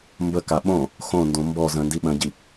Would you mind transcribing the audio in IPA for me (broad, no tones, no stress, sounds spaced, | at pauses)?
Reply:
m b ə k a ɓ õ | x õ n d õ m b ɔ z ə̃ n d i ɓ ə̃ ɟ i